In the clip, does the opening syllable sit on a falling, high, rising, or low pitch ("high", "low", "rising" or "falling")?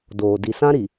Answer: low